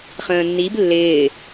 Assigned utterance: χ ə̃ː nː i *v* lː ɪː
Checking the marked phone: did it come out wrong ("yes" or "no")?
yes